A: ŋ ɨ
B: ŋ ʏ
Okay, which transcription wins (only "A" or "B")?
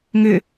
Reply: B